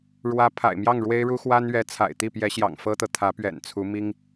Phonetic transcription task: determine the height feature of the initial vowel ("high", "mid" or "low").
low